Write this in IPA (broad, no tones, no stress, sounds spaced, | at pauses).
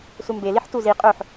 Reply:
s u m b e l i ħ t u z i qʼ œ ħ